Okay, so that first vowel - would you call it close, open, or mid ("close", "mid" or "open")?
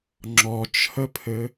mid